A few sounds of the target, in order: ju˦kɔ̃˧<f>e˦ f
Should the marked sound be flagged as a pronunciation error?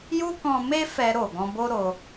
yes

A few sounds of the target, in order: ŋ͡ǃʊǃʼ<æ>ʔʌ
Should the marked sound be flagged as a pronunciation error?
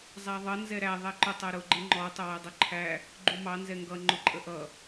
yes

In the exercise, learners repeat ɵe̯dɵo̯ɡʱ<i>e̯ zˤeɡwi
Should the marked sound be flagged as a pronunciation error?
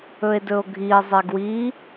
no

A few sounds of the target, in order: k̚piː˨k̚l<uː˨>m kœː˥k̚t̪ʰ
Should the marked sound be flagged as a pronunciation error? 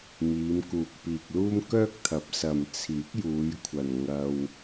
yes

